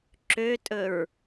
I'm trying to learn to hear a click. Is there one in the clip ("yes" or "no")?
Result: yes